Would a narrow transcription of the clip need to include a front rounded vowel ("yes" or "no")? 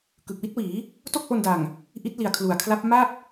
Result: no